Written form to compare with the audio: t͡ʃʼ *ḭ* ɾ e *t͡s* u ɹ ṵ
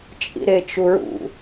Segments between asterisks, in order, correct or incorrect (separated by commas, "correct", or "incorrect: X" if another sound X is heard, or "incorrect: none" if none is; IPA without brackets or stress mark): correct, incorrect: t͡ʃ